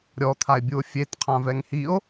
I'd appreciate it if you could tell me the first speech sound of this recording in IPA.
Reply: ɾʲ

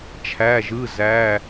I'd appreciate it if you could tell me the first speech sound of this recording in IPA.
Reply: t͡ʃʰ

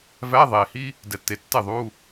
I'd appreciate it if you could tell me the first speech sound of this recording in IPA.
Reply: v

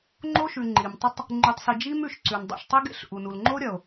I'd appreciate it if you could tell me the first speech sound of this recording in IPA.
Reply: ŋ͡ǃ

